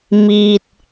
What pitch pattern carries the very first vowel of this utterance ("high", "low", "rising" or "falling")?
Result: low